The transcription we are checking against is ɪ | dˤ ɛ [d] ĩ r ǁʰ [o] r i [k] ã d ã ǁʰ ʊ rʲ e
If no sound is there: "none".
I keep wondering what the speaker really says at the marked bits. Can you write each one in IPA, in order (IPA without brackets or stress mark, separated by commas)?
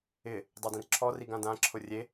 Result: d, ɔ, ɡ